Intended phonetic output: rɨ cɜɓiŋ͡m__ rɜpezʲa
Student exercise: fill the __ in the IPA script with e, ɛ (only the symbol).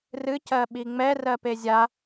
ɛ